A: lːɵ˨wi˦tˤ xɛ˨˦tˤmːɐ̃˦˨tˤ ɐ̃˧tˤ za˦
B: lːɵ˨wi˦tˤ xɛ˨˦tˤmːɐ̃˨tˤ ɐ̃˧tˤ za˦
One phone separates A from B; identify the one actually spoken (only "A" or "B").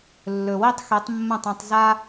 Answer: A